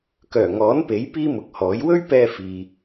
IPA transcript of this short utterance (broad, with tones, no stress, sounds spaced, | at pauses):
k œː˨˩ ŋ ɔː˨˥ n p e˨˥ j p iː˥ m ʊ˨˥ k̚ h ɔː˨˥ j w ɵ˥ ɥ p ɛː˧ f iː˨